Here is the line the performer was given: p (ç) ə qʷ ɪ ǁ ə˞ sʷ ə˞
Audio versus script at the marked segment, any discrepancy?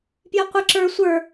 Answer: yes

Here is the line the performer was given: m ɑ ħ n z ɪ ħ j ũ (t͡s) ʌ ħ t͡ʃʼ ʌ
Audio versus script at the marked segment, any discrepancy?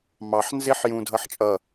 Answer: yes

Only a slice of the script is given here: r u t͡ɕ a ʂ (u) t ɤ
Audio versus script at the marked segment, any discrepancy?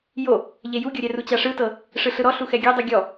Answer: yes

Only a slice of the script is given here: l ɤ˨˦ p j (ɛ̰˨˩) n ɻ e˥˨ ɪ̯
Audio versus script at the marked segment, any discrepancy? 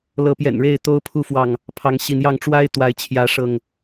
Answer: no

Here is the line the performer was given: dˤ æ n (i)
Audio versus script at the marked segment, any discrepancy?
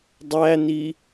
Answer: no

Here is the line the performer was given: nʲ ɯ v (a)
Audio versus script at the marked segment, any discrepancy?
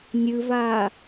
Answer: yes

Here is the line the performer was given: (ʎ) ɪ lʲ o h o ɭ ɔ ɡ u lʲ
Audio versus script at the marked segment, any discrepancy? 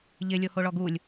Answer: no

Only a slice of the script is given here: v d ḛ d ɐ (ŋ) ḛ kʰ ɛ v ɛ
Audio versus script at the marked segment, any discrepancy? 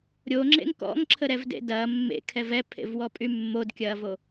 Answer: yes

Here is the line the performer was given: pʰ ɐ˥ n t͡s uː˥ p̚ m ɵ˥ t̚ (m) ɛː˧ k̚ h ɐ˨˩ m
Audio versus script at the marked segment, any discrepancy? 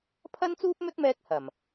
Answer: no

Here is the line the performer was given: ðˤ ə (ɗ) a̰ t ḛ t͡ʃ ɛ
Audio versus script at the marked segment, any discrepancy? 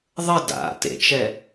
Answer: yes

